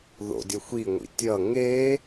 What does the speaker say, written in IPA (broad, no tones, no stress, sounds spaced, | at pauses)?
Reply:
ð o̰ dʲ ʌ xʷ i ŋʷ ḭ tʲ ʌ ŋ e